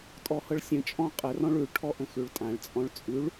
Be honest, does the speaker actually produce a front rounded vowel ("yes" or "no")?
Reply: no